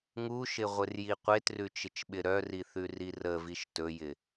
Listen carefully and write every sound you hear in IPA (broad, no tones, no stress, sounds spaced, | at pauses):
ŋ u ʃ ɪ ʁʷ ɪ r j i qʷ e t r ʉ t͡ʃ ɪ t͡ʃ ɓ ɪ ɾ œ r i θ ʉ r i r ə v i ʃ t ɵ j ɪ